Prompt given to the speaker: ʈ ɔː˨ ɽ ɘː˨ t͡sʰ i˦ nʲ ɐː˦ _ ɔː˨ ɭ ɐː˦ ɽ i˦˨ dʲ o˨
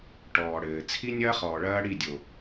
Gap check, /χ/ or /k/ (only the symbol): χ